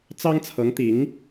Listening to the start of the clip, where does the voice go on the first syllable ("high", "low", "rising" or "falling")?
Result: high